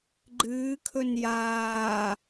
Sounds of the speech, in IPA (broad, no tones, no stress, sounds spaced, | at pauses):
ɡ͡ǃ ɨː kʰ ɵ n j aː